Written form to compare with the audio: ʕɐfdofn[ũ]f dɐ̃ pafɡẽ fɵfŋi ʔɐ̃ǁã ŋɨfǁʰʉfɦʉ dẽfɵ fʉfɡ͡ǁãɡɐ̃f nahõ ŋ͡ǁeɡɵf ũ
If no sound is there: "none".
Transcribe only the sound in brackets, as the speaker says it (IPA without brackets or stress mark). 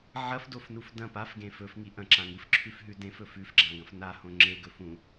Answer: u